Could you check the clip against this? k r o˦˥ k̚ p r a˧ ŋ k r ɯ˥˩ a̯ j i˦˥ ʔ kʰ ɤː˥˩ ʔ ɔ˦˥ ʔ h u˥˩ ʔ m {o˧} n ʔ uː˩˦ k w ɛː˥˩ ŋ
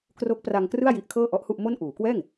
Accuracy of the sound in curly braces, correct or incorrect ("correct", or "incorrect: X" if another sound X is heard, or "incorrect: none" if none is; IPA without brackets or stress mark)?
incorrect: o˥˩